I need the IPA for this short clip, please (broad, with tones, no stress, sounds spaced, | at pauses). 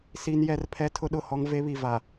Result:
s i˦ n j ɛ˦ r pʰ ɛ˦ tʰ ʊ˦ ɗ ʊ˦˨ h ɔ˦ ŋ v e˦ β i˨ v a˨